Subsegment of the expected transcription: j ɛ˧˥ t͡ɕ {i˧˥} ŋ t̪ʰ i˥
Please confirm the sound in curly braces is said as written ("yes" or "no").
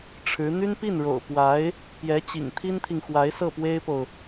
no